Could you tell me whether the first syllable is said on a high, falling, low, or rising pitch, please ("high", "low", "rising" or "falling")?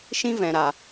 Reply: high